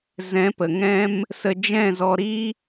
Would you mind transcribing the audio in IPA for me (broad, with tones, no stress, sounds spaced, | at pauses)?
z ɛ̃˨˦ p ə˨ ŋ ɛ̃˦ m | s ə˧ d͡ʒ ɛ̃˦˨ z ɔ˧ ɾ i˦